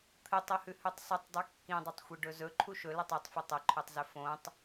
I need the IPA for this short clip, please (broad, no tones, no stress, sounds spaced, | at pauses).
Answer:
t̪ʰ ɨ tˤ ɐ h ʉ h ʉ tˤ sˤ ɵ tˤ dˤ ʉ kː ĩ dˤ ɐ tˤ xʷ i ɖ ɵ z ɵ ǃʰ u ʃ ɵ l ɐ tˤ u tˤ f ɐ tˤ ɐ ǃʰ ʉ tˤ z ɵ f õ tˤ